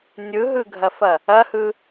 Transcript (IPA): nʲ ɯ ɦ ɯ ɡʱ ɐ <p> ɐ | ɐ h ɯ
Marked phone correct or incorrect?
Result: incorrect